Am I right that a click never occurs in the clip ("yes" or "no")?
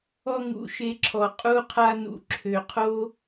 no